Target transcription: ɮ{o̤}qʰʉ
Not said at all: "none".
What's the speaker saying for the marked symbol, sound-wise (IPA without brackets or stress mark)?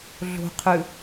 o̤